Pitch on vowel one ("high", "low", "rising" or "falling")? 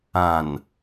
low